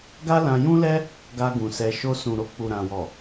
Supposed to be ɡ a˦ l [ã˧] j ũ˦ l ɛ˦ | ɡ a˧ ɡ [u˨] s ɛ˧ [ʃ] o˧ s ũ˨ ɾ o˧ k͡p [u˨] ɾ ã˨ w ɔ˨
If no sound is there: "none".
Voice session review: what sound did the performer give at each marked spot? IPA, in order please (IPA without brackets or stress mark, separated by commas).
ã˧, ũ˨, ʃ, u˨